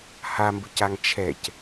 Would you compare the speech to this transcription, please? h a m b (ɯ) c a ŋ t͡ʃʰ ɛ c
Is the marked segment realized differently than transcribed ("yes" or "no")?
no